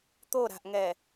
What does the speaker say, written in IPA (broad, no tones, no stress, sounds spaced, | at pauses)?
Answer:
t̪ o ɾ a̤ ʔ ŋ ɛ